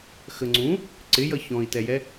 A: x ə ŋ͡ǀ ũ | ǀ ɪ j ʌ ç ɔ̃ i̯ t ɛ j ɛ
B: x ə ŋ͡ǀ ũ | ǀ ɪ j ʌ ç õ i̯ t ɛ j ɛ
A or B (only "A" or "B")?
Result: A